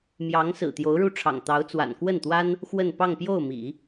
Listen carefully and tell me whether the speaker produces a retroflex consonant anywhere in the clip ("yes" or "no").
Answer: yes